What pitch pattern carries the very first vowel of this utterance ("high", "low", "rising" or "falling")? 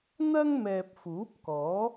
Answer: high